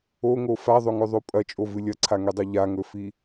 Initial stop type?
ejective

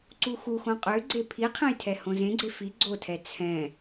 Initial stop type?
click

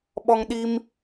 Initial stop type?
implosive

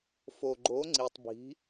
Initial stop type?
click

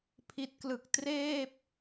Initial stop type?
aspirated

